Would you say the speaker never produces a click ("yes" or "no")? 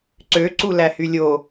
no